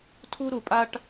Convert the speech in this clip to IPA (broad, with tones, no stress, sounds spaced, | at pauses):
tʰ u˥ ɾ u˩ pʼ a˥ ʈ